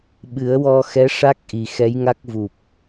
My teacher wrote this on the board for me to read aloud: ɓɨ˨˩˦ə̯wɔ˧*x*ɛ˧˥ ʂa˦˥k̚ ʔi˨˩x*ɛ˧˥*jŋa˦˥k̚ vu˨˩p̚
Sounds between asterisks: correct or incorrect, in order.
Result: correct, correct

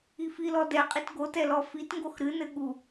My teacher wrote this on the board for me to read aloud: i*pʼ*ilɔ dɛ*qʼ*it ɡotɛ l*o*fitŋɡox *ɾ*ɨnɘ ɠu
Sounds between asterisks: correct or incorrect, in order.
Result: incorrect, correct, incorrect, correct

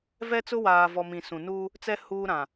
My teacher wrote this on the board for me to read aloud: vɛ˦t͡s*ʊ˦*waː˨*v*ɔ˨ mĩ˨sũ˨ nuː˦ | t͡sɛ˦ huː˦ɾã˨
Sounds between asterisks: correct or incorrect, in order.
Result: correct, correct

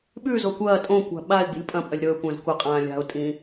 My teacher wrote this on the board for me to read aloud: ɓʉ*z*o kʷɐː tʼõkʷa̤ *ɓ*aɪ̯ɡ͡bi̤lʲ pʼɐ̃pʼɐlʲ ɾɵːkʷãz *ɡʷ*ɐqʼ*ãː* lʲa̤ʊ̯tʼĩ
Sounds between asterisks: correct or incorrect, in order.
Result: correct, correct, incorrect, correct

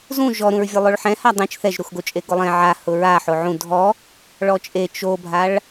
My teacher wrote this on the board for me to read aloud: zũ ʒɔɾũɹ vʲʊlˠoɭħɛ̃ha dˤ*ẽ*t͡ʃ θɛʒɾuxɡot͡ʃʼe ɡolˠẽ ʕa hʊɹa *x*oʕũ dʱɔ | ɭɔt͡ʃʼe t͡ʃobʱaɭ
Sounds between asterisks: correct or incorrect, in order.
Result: incorrect, incorrect

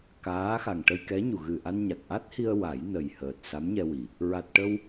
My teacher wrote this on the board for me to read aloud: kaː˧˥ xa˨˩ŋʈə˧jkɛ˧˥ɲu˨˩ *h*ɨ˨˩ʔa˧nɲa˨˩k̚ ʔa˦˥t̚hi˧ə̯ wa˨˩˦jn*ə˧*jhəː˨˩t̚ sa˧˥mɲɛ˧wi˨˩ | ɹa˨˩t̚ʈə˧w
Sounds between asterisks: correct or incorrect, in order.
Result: incorrect, incorrect

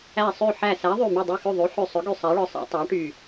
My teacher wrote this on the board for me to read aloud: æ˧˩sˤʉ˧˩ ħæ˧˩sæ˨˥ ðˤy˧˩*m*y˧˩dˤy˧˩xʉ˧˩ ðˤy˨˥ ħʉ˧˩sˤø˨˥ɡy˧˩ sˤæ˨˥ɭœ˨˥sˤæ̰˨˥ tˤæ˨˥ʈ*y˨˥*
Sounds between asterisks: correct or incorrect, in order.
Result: correct, incorrect

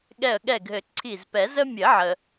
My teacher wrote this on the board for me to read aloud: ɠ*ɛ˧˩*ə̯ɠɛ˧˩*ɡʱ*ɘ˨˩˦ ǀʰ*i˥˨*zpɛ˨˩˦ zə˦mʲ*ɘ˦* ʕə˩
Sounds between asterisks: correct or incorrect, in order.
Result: correct, correct, incorrect, incorrect

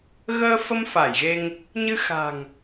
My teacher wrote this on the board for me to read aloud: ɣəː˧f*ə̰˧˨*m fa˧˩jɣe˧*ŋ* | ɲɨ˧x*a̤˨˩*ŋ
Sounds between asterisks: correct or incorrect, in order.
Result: incorrect, correct, correct

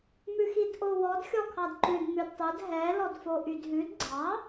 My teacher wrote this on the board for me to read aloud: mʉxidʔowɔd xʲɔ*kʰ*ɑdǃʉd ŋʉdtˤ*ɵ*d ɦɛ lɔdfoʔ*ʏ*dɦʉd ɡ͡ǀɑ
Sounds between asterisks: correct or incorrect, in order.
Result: correct, correct, incorrect

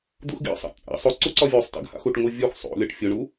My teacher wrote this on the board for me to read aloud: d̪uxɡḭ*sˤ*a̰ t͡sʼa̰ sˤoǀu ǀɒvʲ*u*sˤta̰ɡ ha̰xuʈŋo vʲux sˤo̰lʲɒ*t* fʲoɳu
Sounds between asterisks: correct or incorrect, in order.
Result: correct, incorrect, incorrect

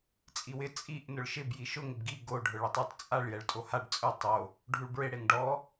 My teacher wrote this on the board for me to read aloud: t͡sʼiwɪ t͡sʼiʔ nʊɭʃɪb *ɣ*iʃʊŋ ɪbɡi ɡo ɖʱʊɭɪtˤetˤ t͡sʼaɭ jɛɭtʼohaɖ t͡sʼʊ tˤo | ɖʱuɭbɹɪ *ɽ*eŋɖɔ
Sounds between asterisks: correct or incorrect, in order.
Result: incorrect, correct

